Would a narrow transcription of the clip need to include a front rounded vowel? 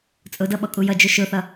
no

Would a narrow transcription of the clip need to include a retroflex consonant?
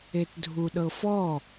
no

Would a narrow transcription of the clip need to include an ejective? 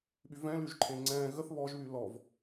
no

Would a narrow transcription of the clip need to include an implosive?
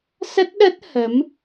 yes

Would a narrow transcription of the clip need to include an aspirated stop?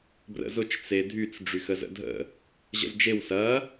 no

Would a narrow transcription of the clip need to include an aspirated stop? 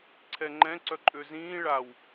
yes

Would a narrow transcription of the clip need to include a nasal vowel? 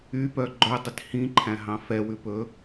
yes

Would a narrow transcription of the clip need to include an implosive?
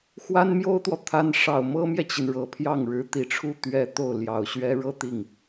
no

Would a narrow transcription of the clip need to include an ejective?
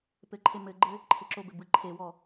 no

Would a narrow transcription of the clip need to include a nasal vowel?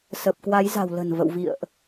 no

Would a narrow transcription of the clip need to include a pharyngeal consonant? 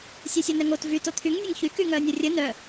no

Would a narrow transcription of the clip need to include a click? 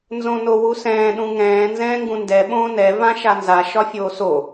no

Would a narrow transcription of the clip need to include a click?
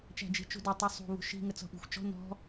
no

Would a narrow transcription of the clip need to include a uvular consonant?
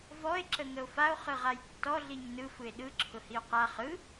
yes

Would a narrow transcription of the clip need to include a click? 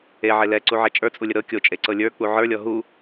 yes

